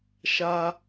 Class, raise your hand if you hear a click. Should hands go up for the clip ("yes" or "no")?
no